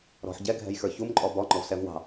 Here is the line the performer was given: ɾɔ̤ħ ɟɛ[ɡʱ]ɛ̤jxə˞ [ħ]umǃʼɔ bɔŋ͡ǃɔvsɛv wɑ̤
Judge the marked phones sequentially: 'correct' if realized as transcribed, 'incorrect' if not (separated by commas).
correct, incorrect